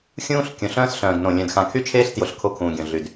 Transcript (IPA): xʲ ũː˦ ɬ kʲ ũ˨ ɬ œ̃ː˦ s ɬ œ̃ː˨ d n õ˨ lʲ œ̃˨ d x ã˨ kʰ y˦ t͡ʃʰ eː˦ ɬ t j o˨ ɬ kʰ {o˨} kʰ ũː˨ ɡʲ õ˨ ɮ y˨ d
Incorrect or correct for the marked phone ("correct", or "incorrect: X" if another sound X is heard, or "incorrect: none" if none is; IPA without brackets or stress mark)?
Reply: incorrect: o˦˨